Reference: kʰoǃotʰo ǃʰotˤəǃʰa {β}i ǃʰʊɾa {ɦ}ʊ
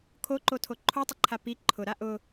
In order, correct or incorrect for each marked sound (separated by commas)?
incorrect, incorrect